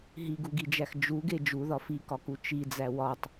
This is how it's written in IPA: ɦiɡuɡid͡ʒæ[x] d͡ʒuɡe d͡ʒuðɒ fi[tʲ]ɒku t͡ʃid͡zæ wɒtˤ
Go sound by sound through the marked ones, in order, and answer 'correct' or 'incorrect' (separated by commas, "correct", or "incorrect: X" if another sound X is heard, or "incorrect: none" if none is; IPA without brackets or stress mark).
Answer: correct, incorrect: k